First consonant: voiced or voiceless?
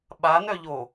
voiced